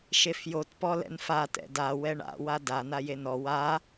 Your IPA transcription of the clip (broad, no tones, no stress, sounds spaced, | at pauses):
ʃ e f j o t p ɔ l ɛ̰ n f a t ɛ̰ d a w ɛ ɳ a̰ w a d a n a j e n ɔ w a